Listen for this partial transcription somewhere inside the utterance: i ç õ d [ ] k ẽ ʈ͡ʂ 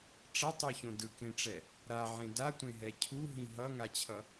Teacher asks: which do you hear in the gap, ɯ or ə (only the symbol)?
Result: ɯ